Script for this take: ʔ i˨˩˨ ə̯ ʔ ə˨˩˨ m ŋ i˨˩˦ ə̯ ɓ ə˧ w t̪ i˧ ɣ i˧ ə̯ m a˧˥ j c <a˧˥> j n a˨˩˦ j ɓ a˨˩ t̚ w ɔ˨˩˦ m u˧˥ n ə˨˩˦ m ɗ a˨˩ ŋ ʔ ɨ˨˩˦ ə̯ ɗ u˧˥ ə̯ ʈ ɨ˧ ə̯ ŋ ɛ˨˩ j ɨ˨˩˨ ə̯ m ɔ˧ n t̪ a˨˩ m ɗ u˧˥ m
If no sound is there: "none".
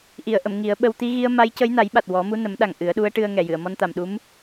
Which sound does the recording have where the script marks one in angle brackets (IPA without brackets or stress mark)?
ə˧˥